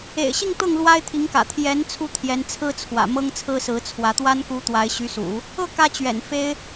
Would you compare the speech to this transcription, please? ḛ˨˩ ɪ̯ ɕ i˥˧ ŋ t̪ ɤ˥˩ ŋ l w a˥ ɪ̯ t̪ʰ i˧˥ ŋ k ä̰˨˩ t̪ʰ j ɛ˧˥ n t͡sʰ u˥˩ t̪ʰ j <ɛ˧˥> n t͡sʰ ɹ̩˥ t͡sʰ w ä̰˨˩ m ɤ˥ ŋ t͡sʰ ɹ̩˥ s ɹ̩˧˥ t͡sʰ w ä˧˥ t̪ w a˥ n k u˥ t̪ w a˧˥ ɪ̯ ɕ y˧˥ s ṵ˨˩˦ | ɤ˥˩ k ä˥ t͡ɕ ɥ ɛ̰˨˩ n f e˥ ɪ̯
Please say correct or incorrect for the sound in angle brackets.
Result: correct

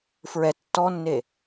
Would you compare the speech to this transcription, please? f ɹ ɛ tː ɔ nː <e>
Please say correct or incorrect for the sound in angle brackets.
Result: correct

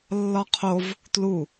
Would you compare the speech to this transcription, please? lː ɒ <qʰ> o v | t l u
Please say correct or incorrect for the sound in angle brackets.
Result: correct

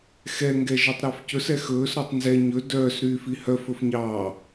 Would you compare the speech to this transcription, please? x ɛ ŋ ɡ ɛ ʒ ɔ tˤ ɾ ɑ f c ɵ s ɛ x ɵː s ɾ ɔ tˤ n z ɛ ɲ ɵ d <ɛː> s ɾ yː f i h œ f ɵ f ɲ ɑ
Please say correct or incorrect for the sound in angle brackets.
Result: incorrect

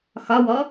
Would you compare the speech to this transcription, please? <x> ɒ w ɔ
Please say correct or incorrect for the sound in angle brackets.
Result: correct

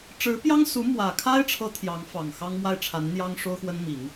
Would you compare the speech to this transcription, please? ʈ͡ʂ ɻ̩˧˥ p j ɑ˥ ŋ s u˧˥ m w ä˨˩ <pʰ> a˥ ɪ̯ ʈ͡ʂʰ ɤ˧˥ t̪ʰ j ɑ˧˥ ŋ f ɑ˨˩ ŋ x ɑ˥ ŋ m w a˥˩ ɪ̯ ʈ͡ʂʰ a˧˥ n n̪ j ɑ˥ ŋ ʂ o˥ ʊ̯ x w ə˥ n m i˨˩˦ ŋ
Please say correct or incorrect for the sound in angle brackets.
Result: incorrect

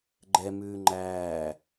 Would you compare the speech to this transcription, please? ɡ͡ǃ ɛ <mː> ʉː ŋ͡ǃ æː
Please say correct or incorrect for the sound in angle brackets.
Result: incorrect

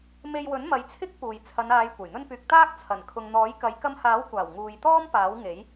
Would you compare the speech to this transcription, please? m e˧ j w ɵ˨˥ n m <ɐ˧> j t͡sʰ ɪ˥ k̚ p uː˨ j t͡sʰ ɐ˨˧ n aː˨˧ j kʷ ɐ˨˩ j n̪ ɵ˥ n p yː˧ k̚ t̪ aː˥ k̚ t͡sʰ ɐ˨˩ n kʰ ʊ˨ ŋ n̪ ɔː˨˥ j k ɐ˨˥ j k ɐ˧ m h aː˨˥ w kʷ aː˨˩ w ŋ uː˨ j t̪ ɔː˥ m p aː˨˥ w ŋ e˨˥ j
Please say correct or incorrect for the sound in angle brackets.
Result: incorrect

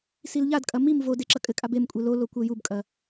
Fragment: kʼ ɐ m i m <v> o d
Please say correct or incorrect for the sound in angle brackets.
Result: correct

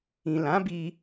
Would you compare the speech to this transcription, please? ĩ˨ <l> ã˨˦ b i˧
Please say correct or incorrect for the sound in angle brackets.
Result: correct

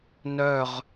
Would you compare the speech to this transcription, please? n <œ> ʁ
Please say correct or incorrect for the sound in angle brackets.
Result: correct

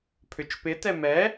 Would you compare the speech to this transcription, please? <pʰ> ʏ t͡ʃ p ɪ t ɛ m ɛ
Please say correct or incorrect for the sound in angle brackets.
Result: correct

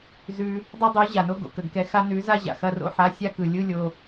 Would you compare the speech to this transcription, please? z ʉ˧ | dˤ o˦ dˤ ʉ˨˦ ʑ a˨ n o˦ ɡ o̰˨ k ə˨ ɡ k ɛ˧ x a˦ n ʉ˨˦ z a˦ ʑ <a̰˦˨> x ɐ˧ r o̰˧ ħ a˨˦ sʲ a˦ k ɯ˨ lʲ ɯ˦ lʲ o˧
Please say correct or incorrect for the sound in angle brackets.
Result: incorrect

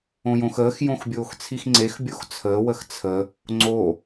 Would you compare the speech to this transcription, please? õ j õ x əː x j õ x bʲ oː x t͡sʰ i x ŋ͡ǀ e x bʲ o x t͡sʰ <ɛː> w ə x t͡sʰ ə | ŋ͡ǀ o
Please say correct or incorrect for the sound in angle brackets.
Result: incorrect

